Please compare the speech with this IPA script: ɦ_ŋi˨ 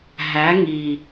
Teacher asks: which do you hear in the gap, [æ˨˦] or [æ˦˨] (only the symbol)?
æ˨˦